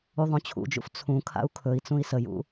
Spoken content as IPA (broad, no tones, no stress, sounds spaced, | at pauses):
u ðˤ õ t͡ɕʰ ṵ d͡ʒ ṵ f t͡sʰ ũ kʰ a̰ u̯ kʰ ɵ i̯ t͡s ũ i̯ s ə j ṵ